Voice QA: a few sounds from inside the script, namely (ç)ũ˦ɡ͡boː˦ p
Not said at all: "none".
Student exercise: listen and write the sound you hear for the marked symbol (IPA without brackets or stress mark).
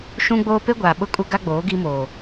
ʃ